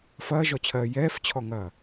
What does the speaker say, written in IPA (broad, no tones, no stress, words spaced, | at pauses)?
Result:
fɐːʒɔt͡ɕʰɜː jɛːft͡ɕʰɔŋɐː